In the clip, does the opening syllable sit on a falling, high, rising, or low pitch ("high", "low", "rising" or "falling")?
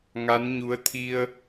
rising